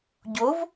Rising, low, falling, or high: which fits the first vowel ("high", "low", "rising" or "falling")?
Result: rising